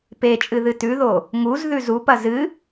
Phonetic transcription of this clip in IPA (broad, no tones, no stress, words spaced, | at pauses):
pet͡ʃʼɨ ðɨtʉðo | ŋuz ðʉzupɐ zɨ